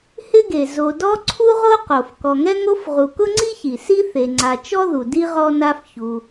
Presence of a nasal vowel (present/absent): absent